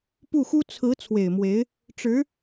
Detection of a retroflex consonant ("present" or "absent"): present